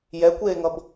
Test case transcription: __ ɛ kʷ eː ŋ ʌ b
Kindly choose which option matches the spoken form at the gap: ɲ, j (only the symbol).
j